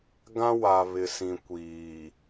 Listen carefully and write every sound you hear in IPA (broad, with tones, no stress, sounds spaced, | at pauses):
ɡ ã˦ w a˨ β ɪ˨ s ĩ˨ kʷ iː˨